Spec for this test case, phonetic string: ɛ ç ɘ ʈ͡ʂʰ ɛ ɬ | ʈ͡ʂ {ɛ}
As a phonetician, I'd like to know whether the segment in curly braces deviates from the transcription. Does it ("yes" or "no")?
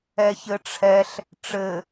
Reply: yes